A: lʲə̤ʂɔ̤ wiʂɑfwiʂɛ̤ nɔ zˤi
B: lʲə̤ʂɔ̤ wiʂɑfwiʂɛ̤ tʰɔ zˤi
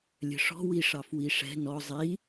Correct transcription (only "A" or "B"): A